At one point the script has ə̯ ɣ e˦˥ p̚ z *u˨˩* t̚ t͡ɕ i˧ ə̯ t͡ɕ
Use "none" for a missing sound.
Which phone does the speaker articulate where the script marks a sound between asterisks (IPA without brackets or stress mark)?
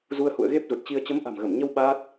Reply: u˨˩